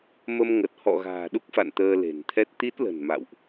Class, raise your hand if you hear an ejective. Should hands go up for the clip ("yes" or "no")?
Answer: no